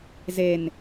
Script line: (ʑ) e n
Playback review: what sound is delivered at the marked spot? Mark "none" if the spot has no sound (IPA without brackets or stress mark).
z